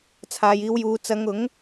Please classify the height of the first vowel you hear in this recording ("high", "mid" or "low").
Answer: low